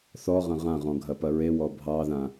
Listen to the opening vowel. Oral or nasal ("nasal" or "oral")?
oral